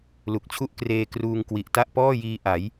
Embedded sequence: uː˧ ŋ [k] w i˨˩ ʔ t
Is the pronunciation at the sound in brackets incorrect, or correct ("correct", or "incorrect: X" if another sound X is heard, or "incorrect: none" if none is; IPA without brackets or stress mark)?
correct